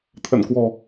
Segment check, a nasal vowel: absent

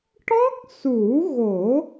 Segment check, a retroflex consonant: present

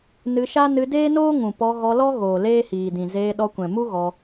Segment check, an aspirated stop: absent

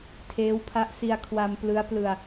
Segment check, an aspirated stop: present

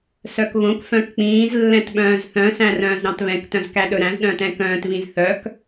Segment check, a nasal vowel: present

